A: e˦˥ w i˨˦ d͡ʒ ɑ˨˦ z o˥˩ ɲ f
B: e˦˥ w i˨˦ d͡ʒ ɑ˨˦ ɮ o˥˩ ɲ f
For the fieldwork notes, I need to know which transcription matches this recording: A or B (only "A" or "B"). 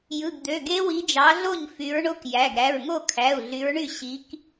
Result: B